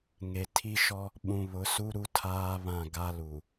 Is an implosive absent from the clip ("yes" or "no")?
no